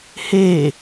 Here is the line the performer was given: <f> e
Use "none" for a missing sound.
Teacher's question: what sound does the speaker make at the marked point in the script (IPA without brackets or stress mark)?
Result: h